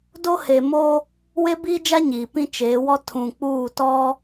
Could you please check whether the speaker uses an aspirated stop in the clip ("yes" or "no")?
yes